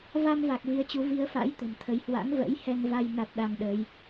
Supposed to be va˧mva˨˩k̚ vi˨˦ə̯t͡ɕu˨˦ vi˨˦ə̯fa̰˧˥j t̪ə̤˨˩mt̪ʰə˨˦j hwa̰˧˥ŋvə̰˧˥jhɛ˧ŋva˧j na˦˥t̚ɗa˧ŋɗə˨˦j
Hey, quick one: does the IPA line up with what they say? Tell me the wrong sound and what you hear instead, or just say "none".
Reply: none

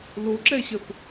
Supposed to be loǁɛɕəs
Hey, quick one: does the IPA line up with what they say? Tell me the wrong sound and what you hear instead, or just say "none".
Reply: s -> θ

